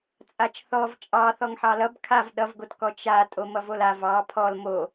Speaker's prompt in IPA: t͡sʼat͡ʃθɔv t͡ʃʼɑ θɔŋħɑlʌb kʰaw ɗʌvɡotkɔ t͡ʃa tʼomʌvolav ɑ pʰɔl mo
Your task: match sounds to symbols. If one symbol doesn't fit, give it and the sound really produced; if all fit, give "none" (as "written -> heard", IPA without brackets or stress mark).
w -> v